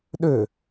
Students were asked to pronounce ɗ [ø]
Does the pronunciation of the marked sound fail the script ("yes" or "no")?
no